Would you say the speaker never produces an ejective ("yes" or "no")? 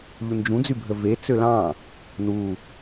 yes